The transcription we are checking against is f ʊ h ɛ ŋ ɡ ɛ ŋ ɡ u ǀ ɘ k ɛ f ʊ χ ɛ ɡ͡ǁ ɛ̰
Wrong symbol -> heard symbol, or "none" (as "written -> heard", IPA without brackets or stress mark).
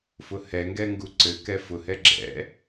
χ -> h